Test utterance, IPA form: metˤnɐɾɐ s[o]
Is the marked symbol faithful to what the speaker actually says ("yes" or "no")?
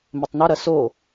yes